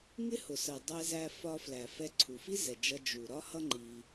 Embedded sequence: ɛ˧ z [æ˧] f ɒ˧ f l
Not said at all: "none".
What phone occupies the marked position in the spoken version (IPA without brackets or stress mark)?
æ˧